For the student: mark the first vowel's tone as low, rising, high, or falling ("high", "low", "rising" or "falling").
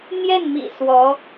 falling